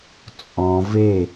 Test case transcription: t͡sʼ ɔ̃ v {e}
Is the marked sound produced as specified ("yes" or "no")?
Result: yes